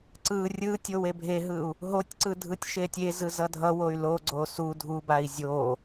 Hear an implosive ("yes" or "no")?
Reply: no